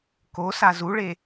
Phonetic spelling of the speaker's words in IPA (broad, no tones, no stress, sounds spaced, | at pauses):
k o s a z u ɭ e